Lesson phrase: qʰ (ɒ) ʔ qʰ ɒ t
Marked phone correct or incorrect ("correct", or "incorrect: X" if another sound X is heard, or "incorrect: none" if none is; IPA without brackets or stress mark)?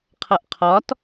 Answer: incorrect: ʌ